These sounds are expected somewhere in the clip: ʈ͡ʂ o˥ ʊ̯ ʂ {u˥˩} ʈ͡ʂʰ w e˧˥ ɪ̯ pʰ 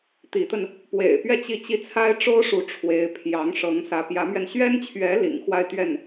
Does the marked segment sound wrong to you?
yes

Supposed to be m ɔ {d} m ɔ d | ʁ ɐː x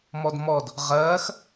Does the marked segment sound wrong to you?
no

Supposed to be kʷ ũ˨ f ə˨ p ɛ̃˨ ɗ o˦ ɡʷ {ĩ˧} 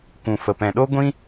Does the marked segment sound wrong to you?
yes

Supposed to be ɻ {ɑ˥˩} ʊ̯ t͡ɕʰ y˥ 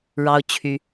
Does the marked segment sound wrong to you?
yes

